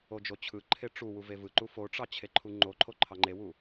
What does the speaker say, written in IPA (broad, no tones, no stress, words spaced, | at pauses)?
od͡ʒot͡ɕʰɯǃʰe ʈ͡ʂu wuvevɯǃu foʈ͡ʂɑ t͡ɕʰeǃʰuŋ͡ǃoǃʰo ǃʰɑŋ͡ǃewu